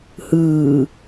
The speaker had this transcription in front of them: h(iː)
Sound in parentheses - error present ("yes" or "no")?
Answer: yes